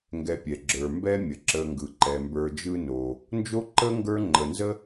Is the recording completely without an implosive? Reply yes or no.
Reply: yes